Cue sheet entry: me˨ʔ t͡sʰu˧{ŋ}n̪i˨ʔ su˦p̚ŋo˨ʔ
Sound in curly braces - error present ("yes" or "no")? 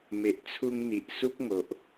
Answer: no